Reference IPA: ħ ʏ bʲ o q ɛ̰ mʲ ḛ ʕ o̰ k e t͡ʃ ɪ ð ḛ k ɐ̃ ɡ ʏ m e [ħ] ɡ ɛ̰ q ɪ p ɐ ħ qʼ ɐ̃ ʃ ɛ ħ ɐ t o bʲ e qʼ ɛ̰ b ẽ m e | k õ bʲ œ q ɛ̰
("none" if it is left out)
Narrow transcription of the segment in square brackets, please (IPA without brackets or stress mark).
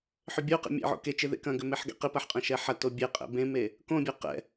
ħ